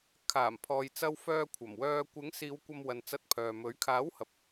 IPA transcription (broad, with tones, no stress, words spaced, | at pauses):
kʰaː˨˩mpʰɔː˨jt͡sɐ˧w fœː˧ kʷʰɐ˨˩mwœː˧ kʷɪ˨˥ŋsiː˨˧w kʷɐ˧mwɐ˨n t͡sɐ˧t̚pʰœː˨mɵ˨˥ɥ kʰaː˨˥whɐ˨p̚